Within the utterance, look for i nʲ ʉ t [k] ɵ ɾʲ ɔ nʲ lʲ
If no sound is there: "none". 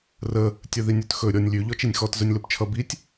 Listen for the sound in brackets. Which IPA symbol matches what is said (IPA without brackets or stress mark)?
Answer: x